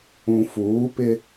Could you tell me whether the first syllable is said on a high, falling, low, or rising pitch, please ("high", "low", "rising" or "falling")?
low